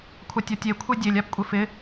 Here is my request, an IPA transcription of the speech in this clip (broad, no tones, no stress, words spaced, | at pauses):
kʷʰatʲɔtʲe kʷʰedʲelʲ apkʷʼɪfɪ